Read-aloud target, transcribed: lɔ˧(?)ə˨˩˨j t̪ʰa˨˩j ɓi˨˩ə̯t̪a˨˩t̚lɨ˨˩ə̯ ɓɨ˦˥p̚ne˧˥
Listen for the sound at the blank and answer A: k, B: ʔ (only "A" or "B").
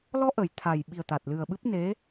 B